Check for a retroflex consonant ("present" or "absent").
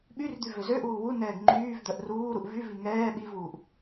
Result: absent